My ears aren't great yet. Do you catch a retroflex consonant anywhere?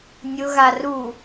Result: no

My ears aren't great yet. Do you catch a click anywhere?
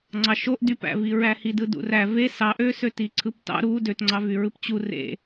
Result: yes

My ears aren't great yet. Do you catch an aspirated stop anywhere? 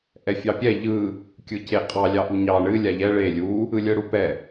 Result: no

